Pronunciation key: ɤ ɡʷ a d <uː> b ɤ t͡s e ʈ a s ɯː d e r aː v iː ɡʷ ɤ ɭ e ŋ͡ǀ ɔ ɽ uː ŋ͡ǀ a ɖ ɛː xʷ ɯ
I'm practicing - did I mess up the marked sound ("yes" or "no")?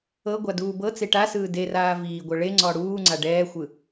no